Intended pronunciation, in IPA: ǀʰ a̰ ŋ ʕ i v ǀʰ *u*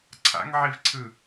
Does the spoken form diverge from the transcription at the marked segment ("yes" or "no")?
yes